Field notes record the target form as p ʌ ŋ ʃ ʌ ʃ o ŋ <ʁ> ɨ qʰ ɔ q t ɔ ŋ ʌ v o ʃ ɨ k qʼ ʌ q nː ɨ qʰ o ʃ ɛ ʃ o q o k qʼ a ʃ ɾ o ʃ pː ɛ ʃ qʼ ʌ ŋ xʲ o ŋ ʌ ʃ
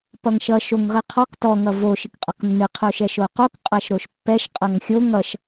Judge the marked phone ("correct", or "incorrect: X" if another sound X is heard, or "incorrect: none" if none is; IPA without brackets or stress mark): correct